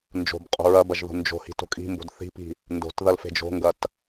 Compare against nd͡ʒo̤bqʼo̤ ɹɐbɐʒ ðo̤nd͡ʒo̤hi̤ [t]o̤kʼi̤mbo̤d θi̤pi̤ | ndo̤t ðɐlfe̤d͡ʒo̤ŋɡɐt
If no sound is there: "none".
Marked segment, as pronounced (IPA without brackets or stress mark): t